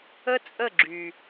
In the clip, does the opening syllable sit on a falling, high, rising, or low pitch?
high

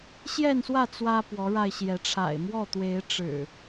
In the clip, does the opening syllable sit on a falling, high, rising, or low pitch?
falling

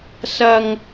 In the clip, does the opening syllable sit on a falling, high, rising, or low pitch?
high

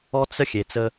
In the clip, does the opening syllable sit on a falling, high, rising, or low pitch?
high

